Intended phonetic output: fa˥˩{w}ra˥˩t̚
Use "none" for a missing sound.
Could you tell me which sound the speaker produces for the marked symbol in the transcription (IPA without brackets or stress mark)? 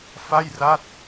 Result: j